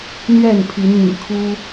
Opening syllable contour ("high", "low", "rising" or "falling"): falling